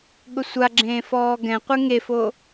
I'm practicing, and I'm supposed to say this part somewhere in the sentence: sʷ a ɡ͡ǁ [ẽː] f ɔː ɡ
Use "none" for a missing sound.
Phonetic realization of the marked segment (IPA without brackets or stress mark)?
ẽː